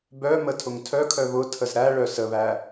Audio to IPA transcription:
b œ m ə tʰ ʊ ŋ tʰ œ kʰ œ β ʊ tʰ ə z ɾ æ ɭ œ s ə β æ

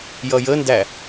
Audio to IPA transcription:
j ʌ j ə n d æ

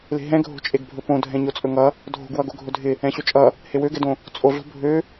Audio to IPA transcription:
l e̤ ɦ ɛ̃ ɡʱ o̤ t͡ʃʼ e ɡ bʱ ɵ p õ dʱ ɛ̃ ɲ o t͡sʼ ɵ ŋ ʌ | dʱ o̤ ɡ w ʌ ɡ o ɡʱ ɵ dʱ ɪ | ɛ̃ ɕ ɵ t͡ʃʼ ʌ | h e w ø ɡ ɛ d õ | t͡sʼ o ɮ o̤ bʱ ø

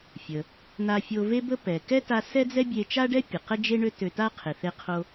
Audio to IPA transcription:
fʲ ə˩ | n̪ a˧ fʲ o˧ v e˥ b ə˥ p ɛ˩ k ɛ˥ t a˧ s ɛ˥ d͡z ɛ˥ bʲ e˧ t͡ʃ a˥ ɖ ɛ˥ pʲ ə˩ q ə˥ d͡ʒ e˥ ɳ ø˥ t ø˧ t a˥ qʰ e˩ θ e˧ qʰ o˧

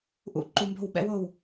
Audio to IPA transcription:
ʔ ṵ˨ ǃ u˧ m b o̤˦˨ w ɓ ɛ̰˦ w o˦˨ w

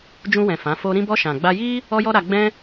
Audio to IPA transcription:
d͡ʒ ũ˧ w ɛ̃˨ f ã˨˦ f o˦ ɾ ĩ˧ b ɔ˧ ʃ ã˨ ɡ͡b a˧ j i˦ | ɔ˦ j ɔ˦ ɾ a˧ ɡ͡b ɛ̃˦

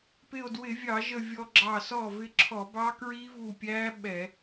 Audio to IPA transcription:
p ɪ˧˩ o̯ d w ɪ˧˩˧ vʲ ɑ˧˩˧ ʒ ə˧˩ vʲ ɔ˧ ɡ͡ǁ ɑ˧˩ s ɔ˥˩ v ɪ˧ ǁʰ ɔ˧˩˧ b ɑ˦˥ k ɹ i˦˥ v u˧˩ pʲ æ˦˥ ɓ ɛ˧˩˧

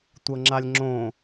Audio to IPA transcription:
tʷ ɤ ŋ͡ǁ a lʲ ŋ͡ǁ õ

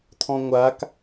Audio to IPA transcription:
t̪ʰ ɔ̃ ŋʷ a k

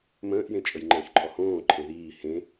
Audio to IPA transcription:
m ə̃ː ʔ j ẽ t͡ʃʼ ə j ŋ͡ǃ ə̃ː ç ǃʰ ɔ h õː ǃʰ ẽ ð iː h ẽ

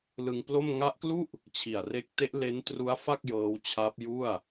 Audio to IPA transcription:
l ɯ˧ ŋ p l o˥˩ m ŋ a˦˥ ʔ k l u˥˩ ʔ | t͡ɕʰ i˨˩ a̯ r e˦˥ k̚ t e˦˥ ʔ l e˦˥ n t r u˦˥ a̯ f a˥˩ k̚ j ɤː˦˥ w t͡ɕʰ a˦˥ p̚ j u˥˩ a̯

